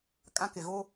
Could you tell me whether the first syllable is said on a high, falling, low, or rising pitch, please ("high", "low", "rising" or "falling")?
high